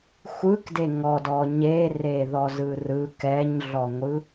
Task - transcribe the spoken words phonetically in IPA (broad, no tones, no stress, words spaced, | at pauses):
xʷɯkde ŋɔdɔ ɲereðɔzɯ rɯ kɛɲɮɔŋʷɯ